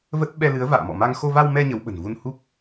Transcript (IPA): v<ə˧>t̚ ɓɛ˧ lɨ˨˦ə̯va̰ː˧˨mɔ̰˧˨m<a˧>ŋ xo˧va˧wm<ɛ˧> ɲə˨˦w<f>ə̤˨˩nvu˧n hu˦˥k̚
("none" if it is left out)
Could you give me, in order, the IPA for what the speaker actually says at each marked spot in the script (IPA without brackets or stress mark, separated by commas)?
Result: ə˦˥, a˧, ɛ˧, ɓ